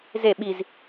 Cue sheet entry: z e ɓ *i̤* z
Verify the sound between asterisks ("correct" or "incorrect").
incorrect